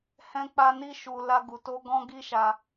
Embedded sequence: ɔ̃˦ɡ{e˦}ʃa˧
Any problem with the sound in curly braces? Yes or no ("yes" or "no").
yes